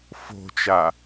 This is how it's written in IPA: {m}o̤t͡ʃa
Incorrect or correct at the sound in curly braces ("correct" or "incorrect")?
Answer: incorrect